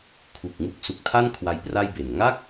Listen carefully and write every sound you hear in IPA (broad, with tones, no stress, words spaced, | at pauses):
kʰu˨˩k̚ŋu˦˥k̚ su˨˩k̚tʰa˥˩n kʰwa˦˥jpra˥˩jbe˨˩n ŋa˥˩k̚